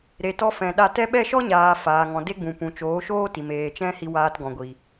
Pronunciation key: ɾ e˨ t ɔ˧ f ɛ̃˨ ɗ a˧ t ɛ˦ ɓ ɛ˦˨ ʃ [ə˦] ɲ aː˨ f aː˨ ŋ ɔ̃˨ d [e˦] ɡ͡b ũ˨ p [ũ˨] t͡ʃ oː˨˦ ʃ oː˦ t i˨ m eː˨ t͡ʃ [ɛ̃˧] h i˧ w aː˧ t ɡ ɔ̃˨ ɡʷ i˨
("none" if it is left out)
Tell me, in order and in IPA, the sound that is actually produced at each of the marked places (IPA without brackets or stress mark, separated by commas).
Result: ɔ˦, e˦, ũ˨, ɛ̃˦